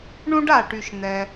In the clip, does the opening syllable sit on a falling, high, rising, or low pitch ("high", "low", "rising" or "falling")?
high